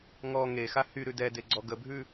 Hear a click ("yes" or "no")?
yes